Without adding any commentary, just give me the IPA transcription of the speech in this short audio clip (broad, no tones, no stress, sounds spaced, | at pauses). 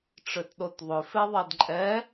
ʈ͡ʂ ø t ɗ o t ðˤ ʏ f e ðˤ ɛ d ǃʼ ɛ